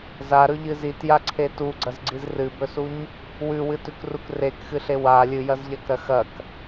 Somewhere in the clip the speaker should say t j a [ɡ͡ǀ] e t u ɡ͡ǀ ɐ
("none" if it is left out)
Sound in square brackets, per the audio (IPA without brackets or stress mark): ǀʰ